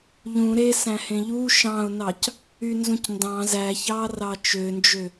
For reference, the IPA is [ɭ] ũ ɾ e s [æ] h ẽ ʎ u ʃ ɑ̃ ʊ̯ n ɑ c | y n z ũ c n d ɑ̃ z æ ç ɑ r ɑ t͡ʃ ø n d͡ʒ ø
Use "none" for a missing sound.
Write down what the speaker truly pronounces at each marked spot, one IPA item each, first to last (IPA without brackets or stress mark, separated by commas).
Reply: ʎ, æ̃